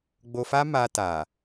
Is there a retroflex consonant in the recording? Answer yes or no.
no